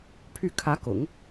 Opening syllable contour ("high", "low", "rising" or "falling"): falling